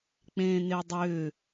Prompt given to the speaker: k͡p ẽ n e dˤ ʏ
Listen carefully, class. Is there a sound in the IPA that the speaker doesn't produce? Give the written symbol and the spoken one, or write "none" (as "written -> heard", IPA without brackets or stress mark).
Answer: none